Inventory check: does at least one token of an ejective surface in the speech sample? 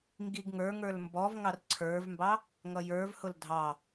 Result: no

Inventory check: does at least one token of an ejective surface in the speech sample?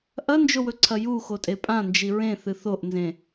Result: yes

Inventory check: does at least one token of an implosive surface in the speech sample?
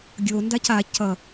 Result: no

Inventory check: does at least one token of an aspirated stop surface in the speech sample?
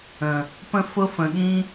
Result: no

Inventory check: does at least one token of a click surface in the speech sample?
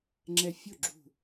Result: yes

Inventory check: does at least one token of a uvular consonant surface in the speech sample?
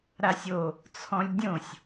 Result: no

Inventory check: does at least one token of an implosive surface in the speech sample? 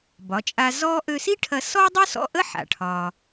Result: no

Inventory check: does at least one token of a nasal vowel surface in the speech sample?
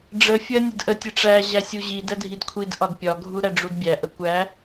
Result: no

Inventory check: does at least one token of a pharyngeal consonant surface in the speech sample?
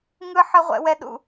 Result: yes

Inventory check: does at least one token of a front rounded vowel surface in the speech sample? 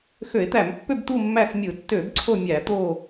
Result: yes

